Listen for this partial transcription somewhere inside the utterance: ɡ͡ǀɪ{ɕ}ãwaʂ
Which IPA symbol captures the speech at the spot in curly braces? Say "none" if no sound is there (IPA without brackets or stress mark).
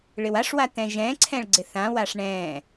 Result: θ